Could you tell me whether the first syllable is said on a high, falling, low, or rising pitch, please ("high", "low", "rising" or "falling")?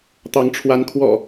rising